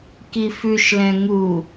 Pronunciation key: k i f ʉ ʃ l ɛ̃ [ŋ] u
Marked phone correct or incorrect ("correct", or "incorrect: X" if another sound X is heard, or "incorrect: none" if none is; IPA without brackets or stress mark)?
correct